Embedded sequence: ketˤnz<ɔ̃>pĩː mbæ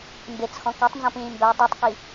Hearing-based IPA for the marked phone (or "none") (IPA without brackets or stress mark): ɔ̃